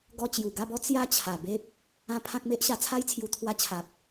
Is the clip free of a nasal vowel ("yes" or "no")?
no